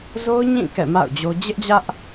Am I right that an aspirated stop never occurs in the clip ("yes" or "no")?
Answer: yes